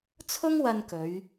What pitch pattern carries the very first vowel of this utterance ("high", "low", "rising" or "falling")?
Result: high